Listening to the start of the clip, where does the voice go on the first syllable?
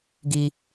high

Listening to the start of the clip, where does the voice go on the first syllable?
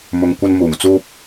low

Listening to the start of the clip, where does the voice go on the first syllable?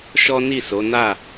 high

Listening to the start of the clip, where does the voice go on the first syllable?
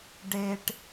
low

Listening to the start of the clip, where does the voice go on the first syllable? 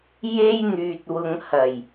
high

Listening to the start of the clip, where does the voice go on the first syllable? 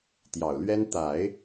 low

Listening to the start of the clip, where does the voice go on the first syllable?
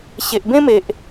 low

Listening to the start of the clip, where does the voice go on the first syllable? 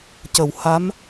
low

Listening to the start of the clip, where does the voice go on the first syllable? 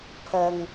low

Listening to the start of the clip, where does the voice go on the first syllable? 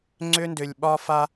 high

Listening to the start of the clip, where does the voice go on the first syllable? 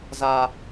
high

